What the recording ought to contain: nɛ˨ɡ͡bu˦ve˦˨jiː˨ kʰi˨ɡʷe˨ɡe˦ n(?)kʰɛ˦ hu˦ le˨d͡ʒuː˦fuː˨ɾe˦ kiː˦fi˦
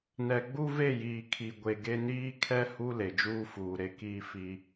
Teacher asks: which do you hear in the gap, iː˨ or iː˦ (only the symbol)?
iː˦